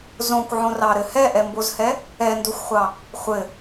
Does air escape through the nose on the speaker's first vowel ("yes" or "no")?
yes